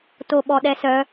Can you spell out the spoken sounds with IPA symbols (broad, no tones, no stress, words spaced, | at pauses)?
toɓɔɗɛsœ